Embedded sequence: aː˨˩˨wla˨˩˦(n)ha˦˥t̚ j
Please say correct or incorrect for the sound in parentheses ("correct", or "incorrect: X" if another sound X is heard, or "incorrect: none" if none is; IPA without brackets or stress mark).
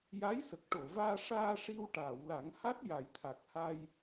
incorrect: ŋ